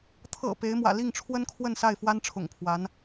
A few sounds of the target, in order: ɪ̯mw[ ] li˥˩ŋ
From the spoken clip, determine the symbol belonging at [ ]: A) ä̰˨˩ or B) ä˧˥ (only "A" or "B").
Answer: A